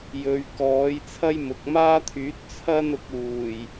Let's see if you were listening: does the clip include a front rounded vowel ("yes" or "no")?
yes